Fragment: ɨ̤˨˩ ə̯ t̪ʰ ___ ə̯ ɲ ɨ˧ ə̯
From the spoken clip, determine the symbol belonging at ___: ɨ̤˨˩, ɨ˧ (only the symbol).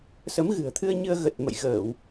ɨ˧